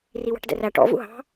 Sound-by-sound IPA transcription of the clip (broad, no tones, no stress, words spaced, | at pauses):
riwɑ̤ʈdɛ̰ræ ʈɔ̰ vṵɦɑ̤